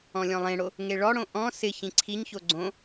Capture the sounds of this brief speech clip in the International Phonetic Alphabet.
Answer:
ɔ̃lʲɔ̃lˠẽɽo | ŋeɭɔɽõ ʔɔ̃ sɪ çĩǀʰiɲço ɡ͡ǀõ

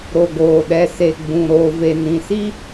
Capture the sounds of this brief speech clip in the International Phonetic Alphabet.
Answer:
ɾo˨ɡoː˨ɗɛ˨ se˨ɡ͡bũ˨ ɾoː˨ve˨ nĩ˨si˦

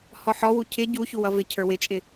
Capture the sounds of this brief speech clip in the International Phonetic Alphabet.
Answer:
hɔħɔwu cʰɪ ɟuçu wʌvɪcʰə˞ wɪt͡ʃʼɪ

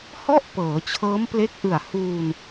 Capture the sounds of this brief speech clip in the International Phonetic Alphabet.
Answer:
hɔ˥˩ʔ pɤː˩˦t͡ɕʰɤː˦˥mple˦˥k̚ʔɯ˨˩a̯ huː˧n

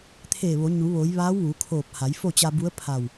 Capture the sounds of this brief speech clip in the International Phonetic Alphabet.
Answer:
t̪ʰeː˧˩ʋo˩˧ ɲu˩˧ ʋo˩˧jʋaː˧˥w ʋu˩˧kʰoː˧˩p̚ha˩˧jfo˥˨ t͡ɕa˧bu˧˥ə̯pʰa˧˩w

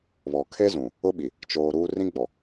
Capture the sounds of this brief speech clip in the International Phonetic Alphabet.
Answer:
βɔ˨ kʰe˦zũ˨ | ʊ˦ɓi˨ | t͡ʃoː˨ ɾuː˦ rĩ˦ɡ͡bɔ˨

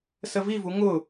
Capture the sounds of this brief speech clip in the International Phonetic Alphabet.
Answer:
səvivu ŋʊ

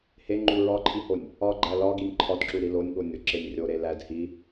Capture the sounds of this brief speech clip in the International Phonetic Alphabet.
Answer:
heŋ͡ǃu ɹɒǃʰihonʲ | ɒɡ͡ǃæ lɒɡinʲ ǃʰɒdǁuɾi lonʲɠonʲoǁenʲ rʲoɾe læd hi

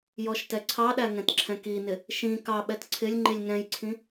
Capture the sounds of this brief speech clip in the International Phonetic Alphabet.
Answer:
jɔʃtɛǀʰɑɗæ ŋɛ̃tǁʰɛ̃kinɪ | ʃĩ kɑɓɛt ǀʰɪlʲ ŋ͡ǃilʲŋɛ̃jǀʰĩ

